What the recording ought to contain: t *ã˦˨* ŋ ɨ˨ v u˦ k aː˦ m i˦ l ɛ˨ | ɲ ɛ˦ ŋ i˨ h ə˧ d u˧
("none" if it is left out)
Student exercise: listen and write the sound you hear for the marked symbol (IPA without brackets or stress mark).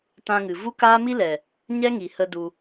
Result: ã˧